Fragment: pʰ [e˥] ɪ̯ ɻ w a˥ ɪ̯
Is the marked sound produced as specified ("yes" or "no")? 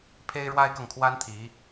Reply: yes